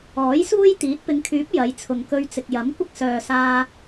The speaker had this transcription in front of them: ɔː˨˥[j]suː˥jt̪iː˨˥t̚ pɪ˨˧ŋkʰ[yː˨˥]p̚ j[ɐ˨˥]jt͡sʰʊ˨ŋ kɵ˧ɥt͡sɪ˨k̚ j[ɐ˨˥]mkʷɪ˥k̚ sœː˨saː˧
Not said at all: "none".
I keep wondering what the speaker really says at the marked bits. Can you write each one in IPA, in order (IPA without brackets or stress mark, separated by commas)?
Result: j, yː˨˥, ɐ˨˧, ɐ˨˥